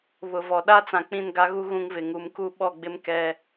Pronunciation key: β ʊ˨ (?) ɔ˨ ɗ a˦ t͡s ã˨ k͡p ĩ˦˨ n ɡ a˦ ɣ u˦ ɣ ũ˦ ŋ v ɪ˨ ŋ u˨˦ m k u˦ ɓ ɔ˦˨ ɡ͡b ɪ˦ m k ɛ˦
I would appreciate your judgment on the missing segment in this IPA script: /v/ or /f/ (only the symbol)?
v